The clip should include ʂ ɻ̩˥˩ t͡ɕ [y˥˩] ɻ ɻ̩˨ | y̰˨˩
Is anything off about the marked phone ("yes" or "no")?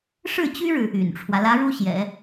yes